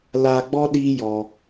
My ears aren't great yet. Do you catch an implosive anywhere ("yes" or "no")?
yes